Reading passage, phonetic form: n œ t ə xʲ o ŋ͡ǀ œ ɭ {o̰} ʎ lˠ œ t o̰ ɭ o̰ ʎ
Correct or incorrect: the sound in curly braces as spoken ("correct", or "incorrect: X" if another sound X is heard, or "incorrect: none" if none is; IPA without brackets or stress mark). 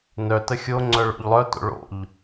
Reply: correct